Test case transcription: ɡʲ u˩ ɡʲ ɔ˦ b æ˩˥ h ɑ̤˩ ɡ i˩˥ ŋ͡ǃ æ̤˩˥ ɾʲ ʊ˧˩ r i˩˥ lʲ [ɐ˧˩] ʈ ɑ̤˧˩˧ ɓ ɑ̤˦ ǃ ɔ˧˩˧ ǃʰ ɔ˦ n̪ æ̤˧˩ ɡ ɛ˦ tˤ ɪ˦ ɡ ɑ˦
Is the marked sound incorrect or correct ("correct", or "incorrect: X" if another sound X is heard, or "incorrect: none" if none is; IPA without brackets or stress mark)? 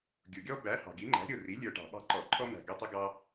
incorrect: ə˞˧˩